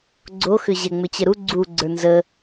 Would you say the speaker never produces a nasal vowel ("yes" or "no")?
yes